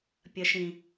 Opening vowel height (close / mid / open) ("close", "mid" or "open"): mid